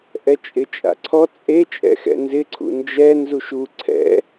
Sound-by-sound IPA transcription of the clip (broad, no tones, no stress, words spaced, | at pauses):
ʔɛt͡ʃʼɪt͡ʃʼa̰ǀʰɔ t͡sʼe t͡ʃʼɛ̰xɛ̰nzɪ ǀʰṵnd͡ʒɛ nzuʃu ǀʰɛ̰